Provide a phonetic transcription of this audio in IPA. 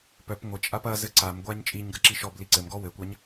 p œ p ŋʷ ɘ t͡ʃʼ a p ɐ z ɘ ǀ a m ɡʷ a ɲ t͡ʃʼ i ɲ ɡ ɐ ǁ i ʃ ɔ b l i ǀ ɘ m ɡ ɔ w ɘ kʷ a ɲ

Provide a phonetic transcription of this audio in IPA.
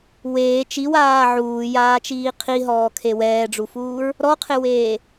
w eː t͡ʃ i w aː ʕ uː j aː t͡ʃ iː qʰ i ɦ ɔː kʰ e w ɛː ɖ͡ʐ u f uː ɹ | ɾ ɔ qʰ ɪ w eː

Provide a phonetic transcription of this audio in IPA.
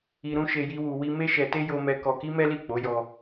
i˧ ɾ ũ˦ ʃ e˧ j i˦ w u˧ w i˦ m e˦ ʃ ɛ˧ t e˦ j o˧ m ɛ˧ k ɔ˧ k i˦ m ɛ˦ l i˦˨ k͡p o˨˦ j ɔ˧

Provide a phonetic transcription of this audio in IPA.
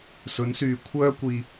s ɵ˨˥ n s yː˨ kʷʰ œː˥ kʷ iː˧

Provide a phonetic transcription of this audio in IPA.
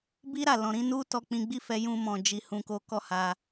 b i˦ ɾ a˦˨ l ɔ̃˨ ɾ ĩ˨˦ n u˦ t ɔ˧ k͡p ĩ˧ ɡ͡b i˦ f ɛ˧ j ũ˧ m ɔ̃˨ d͡ʒ i˧ h ũ˧ k o˦ k ɔ˦˨ h a˧

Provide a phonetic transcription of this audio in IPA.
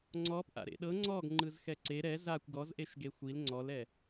ŋ͡ǀ ɔ p ʔ a̰ ɾ ḛ ɗ ɤ ŋ͡ǀ ɔ ɡ ŋ͡ǃ ɯ z x ɛ ǀ e ɾ ɛ z a kʷ ɡ ɔ z ʔ e ʃ ɡ e xʷ i l ŋ͡ǀ ɔ l ɛ

